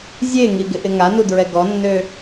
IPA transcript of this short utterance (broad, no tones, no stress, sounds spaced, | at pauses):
zʲ e ŋ i ɡ ɪ ʔ ɪ ŋ a n u d ɹ ɛ ɡ ɔ nː ø